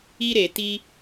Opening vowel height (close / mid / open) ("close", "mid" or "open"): close